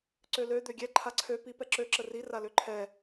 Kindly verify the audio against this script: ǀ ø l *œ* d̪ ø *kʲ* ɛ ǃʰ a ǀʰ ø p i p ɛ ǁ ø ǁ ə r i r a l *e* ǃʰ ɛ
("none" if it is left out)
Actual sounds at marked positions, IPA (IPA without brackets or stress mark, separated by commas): ø, ɡʲ, ø